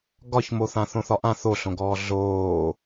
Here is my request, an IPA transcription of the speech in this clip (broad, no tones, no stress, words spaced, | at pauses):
ɡɒçmoθã θõθɒʔã θoɬõɡɔː ɮoː